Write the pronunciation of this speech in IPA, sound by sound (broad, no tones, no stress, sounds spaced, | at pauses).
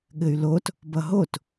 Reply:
ɠ ɘ y̯ l o t | b ʌ ɦ o t